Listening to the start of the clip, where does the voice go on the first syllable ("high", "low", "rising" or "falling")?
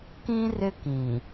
high